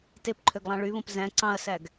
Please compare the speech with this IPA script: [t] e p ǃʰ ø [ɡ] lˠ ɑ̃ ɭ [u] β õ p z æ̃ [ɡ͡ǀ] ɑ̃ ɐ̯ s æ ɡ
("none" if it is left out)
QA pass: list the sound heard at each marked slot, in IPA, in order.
t, ɡ, y, ǀ

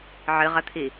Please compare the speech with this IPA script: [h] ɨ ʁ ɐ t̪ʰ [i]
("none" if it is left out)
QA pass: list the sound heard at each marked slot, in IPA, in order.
ʕ, i

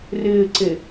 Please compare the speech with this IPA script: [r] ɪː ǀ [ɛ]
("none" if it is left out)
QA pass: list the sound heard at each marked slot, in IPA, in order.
r, e

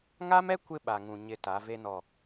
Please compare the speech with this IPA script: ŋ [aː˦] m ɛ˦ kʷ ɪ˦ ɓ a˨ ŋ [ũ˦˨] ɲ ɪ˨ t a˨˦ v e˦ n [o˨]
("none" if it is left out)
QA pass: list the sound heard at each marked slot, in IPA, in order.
aː˦, ũ˨, ɔ˨

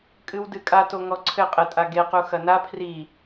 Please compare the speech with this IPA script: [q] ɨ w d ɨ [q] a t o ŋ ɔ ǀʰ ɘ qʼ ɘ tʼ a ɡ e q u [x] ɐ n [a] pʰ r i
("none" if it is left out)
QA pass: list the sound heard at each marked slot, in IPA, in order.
kʼ, kʼ, x, a

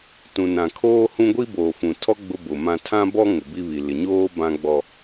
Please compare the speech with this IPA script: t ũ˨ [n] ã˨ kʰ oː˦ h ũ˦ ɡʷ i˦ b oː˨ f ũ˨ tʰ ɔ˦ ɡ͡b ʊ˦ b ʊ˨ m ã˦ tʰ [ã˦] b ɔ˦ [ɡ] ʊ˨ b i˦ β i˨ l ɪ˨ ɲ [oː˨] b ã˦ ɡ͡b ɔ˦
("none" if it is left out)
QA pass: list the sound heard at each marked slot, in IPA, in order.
n, ã˦, ŋ, oː˦

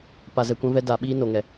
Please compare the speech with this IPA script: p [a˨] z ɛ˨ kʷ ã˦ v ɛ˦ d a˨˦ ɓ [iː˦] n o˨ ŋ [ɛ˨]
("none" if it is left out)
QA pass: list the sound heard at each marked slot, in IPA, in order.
a˨, iː˦, ɛ˨

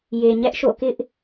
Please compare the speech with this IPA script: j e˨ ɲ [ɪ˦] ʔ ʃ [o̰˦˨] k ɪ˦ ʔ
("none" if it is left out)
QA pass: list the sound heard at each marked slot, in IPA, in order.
ɛ˦, o̰˦˨

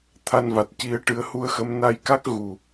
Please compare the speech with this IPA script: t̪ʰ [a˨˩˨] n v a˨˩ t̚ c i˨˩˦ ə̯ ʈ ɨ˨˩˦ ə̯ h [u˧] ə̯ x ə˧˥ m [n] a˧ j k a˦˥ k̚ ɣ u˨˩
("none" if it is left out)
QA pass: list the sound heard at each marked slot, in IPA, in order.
a˧, u˧, n

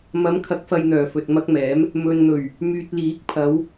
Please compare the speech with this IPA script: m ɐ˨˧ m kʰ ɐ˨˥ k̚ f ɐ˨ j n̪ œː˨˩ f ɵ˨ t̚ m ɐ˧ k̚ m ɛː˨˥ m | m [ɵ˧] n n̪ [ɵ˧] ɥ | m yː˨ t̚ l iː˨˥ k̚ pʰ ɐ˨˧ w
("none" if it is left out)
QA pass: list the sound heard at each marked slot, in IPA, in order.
ɵ˨, ɵ˨˩

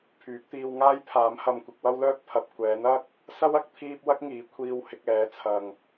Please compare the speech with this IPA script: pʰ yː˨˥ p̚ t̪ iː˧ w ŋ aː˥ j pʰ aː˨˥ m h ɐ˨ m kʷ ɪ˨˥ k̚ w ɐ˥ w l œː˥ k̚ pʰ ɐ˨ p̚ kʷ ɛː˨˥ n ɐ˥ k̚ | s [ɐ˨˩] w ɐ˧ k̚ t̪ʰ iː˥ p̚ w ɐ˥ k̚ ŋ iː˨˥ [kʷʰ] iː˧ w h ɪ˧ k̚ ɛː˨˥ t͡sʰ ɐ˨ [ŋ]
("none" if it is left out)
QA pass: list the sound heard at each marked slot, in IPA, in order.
ɐ˥, kʷʰ, ŋ

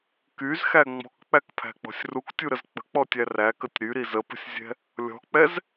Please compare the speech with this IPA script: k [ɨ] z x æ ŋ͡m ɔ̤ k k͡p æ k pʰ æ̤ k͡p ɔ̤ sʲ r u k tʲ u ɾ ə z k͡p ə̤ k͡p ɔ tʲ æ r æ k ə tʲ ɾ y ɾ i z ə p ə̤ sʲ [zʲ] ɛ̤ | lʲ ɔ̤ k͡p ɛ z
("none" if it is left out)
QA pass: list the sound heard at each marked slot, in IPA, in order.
y, zʲ

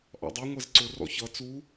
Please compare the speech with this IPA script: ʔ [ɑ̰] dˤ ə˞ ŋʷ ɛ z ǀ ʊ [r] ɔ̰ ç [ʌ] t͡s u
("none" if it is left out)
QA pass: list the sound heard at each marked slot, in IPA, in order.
ɑ̰, r, ʌ

